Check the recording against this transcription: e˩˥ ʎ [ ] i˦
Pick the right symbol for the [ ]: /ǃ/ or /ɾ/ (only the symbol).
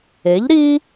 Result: ɾ